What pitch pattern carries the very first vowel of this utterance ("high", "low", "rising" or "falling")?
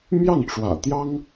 falling